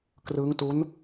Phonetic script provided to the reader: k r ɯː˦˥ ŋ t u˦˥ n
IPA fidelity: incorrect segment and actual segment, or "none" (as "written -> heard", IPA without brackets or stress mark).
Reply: none